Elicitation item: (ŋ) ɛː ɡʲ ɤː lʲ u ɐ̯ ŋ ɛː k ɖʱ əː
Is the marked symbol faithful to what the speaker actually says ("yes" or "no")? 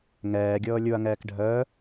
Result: yes